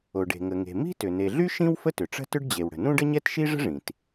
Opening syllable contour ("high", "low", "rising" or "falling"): low